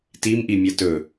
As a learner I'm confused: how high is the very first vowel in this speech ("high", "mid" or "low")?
high